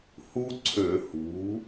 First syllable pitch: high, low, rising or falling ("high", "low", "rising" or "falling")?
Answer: high